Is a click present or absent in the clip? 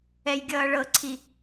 present